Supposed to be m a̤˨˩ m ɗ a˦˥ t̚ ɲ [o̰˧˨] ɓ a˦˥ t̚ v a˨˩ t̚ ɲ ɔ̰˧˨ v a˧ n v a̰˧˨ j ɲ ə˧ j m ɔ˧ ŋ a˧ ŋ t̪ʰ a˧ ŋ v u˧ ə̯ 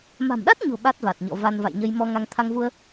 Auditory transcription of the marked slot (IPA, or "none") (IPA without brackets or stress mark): o̤˨˩